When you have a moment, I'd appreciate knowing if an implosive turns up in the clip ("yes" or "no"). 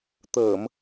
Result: no